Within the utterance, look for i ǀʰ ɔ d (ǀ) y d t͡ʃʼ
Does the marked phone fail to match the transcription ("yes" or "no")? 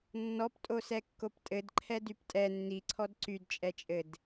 no